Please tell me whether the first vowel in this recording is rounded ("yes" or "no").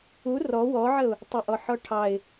yes